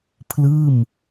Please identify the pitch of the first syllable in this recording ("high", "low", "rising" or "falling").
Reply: falling